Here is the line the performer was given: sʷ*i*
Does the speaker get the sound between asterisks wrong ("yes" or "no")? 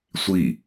no